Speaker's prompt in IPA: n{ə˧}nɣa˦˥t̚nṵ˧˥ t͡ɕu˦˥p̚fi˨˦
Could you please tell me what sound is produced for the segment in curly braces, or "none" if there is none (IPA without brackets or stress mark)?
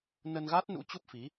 ə˧